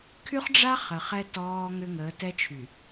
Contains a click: no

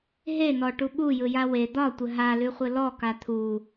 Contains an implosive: yes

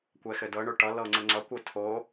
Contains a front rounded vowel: no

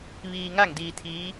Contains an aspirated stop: yes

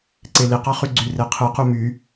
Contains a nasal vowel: no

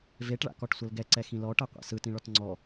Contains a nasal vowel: yes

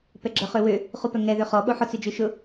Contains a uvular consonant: yes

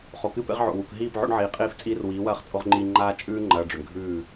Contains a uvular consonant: yes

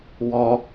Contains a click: no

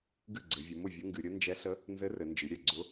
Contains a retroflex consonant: no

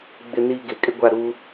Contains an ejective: yes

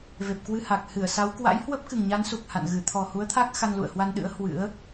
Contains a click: no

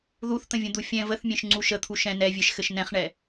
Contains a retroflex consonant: yes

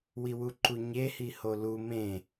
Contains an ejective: no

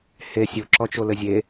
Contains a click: yes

